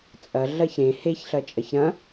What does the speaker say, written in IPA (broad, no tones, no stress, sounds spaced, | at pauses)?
t͡sʼ ɐ ɮ ɐ ç ɾ ẽ h e ç ɬ ɐ t͡ʃʼ ɐ ç ɾ ɐ̃